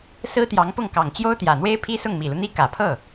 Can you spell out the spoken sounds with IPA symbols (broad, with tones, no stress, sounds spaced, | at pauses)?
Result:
s ɹ̩˥ t̪ j ɑ˧˥ ŋ p ʊ˥˩ ŋ k ɑ˨˩ ŋ t͡ɕ j o˥ ʊ̯ t̪ j ä˨˩ n̪ w e˥ ɪ̯ pʰ i˥ s ʊ˥˩ ŋ m i˨˩ l u˦ n̪ i˥ k ä˨˩ pʰ ɤ˥˩